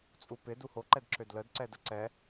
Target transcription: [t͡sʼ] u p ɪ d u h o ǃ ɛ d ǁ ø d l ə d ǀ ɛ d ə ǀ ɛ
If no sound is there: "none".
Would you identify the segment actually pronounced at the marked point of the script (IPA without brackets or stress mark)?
t͡sʼ